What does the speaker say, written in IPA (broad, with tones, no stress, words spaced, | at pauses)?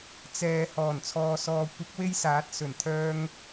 t͡sɛː˨ hɔː˨˩nt͡sʰɔː˨sɔː˨kʷɐ˨˥k̚ we˥jsaː˨˥t̚sɵ˨˩n t̪ʰœː˧ŋ